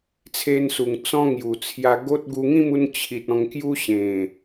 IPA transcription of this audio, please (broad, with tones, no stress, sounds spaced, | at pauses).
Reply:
t͡sʰ e˧ n s u˨˩ ŋ t͡s ɔ̃˦ ŋ j u˨˩ t͡sʰ j a˧ ɡ o˦ t̚ ɡ u˧ ŋ ĩ˥˧ m u˧ n t͡ɕʰ i˨ t̚ ɔ̃˧ ŋ k j u˦ ɕ ẽ˨˩